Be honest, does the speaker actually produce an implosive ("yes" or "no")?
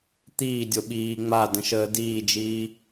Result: yes